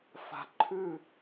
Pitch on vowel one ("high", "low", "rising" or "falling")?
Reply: low